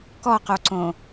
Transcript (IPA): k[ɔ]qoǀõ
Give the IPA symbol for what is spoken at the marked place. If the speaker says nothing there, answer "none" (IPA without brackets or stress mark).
ɔ